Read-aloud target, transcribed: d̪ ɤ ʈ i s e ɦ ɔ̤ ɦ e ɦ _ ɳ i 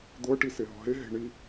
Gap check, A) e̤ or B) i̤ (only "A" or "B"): A